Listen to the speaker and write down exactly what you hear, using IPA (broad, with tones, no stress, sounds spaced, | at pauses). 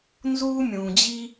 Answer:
n z uː˥ mʲ ũː˩ d͡ʑ i˥